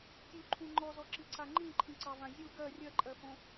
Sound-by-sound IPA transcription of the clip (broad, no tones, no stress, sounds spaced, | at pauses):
tʲ u ǃʰ ũ ŋ͡ǃ ɔ z ɔ ǁ i ǀ a ŋ͡ǃ ĩ ǃʰ ĩ ǀ ɑ v ã zʲ u ɡ ɜ rʲ ɜ ǃʼ ɜ f õ